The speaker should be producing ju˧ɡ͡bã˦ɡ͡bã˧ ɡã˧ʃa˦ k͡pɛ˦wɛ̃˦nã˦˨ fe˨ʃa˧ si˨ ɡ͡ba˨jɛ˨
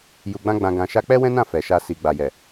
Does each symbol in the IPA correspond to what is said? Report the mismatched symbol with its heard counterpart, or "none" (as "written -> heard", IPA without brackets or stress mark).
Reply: e˨ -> ɛ˨